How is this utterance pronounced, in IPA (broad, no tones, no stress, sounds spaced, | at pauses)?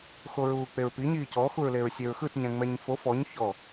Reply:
x o ɹ uː k͡p e ɹ p i ɲ iː c ɔ x u ɹ l e ɹ sʲ e ɹ x ɯ t ɲ ɛ̃ ŋ͡m ɛ ɲ f o f ɔ ɲ ç ɔ